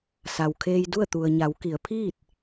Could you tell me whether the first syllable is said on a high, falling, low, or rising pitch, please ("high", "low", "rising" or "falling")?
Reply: low